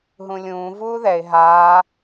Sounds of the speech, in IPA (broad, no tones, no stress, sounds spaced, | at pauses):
ɦ ũ lʲ ũː v uː ð ɛ ɪ̯ ɦ aː